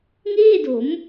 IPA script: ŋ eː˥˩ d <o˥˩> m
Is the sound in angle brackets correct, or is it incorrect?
incorrect